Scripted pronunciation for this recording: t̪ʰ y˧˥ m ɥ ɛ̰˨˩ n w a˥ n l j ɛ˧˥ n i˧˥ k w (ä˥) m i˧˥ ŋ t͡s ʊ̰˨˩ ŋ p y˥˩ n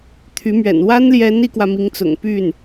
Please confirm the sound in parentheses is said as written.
no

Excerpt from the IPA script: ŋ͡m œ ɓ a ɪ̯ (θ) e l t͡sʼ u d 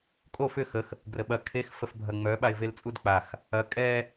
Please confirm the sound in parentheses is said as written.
no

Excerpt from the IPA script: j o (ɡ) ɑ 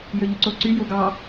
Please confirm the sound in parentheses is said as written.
yes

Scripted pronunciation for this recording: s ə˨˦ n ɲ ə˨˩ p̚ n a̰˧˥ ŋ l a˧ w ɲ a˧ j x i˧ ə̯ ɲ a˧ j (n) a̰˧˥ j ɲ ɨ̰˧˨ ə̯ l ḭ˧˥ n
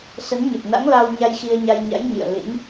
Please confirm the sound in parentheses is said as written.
no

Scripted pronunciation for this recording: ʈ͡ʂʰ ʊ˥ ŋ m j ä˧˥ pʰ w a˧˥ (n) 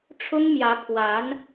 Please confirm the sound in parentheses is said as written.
yes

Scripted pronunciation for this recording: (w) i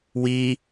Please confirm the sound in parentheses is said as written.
yes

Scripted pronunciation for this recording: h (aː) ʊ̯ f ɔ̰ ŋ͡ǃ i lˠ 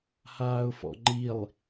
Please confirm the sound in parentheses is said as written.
yes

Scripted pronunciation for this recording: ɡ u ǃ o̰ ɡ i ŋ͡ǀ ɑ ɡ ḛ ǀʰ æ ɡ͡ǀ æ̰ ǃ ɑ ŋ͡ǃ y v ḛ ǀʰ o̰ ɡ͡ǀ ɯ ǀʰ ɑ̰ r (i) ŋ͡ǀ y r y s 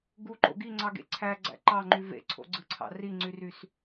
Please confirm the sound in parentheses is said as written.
yes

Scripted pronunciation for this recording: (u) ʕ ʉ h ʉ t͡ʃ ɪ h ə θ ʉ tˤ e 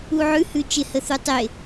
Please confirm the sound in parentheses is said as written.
yes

